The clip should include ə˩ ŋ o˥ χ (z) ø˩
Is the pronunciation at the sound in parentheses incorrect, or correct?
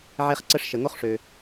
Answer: incorrect